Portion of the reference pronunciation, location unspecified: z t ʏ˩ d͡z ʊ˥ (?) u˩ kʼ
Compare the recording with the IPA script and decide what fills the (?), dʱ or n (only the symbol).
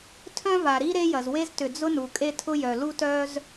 n